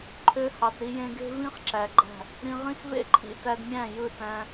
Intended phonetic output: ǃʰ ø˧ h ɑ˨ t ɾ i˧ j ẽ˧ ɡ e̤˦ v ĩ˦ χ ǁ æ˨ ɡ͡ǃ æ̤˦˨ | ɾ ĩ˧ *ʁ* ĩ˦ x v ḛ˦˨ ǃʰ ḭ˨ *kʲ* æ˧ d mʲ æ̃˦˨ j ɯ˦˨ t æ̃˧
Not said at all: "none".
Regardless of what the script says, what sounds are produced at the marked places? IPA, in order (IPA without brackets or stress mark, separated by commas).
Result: ʁ, t